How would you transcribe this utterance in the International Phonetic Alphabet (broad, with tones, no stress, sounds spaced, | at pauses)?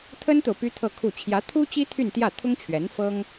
t̪ʰ ə˥ n t̪ o˨ ʊ̯ p y˥ t̪ʰ ɤ˥˧ kʰ u˥˩ t͡ɕʰ j ä˧˥ t̪ʰ u˥ t͡ɕ i˥ t̪ʰ y˥˧ n t̪ j ä˥˩ t̪ʰ ʊ˥ ŋ t͡ɕʰ ɥ ɛ˧˥ n f ɤ˥ ŋ